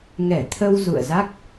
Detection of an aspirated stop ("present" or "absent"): present